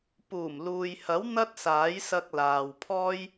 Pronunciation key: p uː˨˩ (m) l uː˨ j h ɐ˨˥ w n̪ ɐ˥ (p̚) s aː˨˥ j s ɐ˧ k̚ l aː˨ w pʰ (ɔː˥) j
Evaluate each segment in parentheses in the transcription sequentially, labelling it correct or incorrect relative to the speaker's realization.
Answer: correct, incorrect, correct

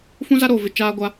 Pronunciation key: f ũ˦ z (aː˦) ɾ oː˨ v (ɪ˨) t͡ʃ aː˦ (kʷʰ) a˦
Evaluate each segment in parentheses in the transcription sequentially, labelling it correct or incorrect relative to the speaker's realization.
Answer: incorrect, correct, incorrect

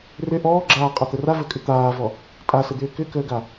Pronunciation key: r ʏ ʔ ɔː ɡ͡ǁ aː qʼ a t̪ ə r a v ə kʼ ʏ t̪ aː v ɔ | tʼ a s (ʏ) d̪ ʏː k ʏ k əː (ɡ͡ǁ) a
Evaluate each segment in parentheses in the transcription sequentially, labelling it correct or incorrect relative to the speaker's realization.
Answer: incorrect, incorrect

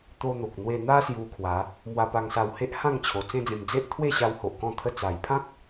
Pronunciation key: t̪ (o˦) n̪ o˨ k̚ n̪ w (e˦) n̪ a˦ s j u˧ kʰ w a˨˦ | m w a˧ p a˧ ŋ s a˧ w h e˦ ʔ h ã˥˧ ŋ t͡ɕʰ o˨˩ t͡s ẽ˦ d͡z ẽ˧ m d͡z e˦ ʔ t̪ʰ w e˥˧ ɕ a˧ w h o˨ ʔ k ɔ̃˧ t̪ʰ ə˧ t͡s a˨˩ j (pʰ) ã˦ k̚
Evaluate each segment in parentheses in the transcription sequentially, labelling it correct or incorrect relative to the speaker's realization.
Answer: incorrect, incorrect, correct

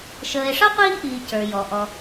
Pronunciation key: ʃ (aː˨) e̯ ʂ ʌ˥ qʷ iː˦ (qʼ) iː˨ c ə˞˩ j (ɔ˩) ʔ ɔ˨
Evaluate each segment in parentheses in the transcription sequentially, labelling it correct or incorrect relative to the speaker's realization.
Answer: incorrect, incorrect, correct

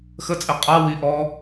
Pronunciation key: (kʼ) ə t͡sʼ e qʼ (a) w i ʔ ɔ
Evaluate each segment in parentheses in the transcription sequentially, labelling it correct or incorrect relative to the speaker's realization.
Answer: incorrect, correct

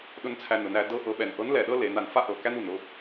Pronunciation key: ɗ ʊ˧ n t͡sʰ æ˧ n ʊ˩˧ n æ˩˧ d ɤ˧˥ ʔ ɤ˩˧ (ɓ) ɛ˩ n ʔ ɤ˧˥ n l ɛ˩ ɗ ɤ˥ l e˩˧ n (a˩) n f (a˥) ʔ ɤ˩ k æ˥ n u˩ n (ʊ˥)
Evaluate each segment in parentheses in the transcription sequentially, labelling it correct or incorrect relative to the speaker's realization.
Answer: correct, correct, correct, correct

